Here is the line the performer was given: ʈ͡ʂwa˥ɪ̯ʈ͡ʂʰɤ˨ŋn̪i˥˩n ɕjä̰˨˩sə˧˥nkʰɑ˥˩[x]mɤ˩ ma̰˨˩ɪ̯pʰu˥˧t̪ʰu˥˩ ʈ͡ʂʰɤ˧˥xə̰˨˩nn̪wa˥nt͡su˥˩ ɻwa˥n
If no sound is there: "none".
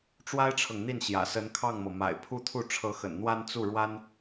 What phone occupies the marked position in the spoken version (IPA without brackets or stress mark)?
ŋ